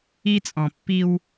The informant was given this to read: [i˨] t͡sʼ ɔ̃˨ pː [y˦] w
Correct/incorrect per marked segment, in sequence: incorrect, incorrect

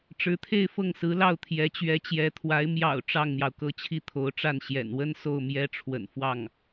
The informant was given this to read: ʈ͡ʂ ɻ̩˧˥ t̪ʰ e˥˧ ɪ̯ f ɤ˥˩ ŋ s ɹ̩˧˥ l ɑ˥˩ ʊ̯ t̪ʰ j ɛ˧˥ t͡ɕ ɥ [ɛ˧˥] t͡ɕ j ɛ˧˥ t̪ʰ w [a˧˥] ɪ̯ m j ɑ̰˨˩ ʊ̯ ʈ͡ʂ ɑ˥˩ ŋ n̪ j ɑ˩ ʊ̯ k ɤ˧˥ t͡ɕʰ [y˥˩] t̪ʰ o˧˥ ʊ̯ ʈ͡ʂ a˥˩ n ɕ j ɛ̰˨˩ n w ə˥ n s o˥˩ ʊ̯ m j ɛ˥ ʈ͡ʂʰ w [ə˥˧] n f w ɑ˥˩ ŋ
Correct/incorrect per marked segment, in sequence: correct, correct, incorrect, incorrect

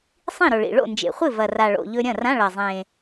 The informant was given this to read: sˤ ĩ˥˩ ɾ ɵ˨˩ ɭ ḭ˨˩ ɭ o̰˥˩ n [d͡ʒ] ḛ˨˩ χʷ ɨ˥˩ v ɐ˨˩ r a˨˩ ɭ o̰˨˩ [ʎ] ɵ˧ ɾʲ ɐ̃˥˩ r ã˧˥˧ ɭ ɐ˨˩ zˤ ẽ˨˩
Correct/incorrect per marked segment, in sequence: correct, correct

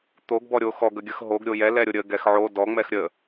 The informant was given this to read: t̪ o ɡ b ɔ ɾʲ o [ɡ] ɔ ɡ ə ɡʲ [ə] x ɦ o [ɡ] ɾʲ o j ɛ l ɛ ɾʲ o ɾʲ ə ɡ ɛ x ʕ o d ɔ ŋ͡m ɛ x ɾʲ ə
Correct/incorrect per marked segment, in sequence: incorrect, correct, correct

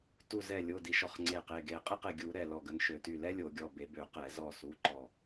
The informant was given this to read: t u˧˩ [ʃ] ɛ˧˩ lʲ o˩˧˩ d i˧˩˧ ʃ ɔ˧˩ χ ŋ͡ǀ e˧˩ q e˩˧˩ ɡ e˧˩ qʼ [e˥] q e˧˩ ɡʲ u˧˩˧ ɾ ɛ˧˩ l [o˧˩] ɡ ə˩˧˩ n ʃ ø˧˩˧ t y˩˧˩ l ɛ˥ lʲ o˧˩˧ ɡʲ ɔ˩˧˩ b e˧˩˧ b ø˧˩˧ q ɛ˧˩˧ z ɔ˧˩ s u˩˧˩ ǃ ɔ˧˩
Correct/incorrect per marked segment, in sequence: incorrect, correct, incorrect

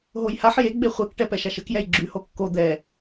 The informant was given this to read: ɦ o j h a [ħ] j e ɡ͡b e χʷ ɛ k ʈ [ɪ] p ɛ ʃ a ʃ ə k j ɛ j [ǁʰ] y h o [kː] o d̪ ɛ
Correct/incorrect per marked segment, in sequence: correct, incorrect, incorrect, correct

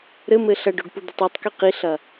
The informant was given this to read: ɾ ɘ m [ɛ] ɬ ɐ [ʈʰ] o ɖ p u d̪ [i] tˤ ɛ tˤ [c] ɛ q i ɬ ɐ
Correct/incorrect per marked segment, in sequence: incorrect, incorrect, correct, incorrect

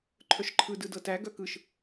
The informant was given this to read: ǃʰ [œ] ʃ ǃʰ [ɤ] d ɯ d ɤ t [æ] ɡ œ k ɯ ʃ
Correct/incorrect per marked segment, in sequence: correct, incorrect, correct

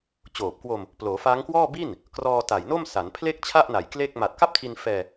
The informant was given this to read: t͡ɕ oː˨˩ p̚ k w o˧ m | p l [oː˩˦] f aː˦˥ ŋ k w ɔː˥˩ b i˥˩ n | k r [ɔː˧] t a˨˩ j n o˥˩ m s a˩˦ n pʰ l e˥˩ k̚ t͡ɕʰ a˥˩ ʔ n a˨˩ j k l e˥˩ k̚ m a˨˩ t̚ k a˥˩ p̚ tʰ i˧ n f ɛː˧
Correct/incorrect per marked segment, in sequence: correct, correct

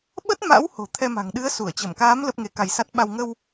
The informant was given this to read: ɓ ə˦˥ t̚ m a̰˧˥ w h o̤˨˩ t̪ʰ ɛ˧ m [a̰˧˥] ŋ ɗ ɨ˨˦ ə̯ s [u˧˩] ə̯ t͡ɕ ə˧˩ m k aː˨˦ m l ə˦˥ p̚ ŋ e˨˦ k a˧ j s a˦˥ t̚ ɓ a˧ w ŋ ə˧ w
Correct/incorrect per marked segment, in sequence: incorrect, correct

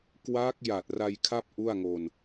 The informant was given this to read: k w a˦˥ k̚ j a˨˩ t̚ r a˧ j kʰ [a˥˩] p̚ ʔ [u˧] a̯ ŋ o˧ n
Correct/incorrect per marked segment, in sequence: correct, incorrect

